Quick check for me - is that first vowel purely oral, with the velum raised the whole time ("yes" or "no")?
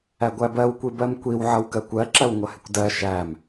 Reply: yes